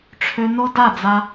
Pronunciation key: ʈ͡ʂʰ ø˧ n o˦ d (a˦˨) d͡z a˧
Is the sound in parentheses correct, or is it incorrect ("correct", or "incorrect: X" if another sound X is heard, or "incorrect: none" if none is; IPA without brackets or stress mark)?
correct